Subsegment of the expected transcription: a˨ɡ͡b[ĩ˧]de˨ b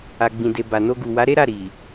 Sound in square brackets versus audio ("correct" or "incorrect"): incorrect